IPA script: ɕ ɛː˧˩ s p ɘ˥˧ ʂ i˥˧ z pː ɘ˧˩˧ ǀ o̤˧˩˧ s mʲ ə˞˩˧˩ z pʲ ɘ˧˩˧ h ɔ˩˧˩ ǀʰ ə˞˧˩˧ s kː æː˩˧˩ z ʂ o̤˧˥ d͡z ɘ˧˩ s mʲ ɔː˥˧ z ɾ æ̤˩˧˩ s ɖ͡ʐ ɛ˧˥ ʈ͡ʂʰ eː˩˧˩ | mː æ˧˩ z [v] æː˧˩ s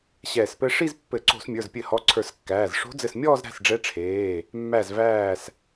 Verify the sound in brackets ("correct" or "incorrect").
correct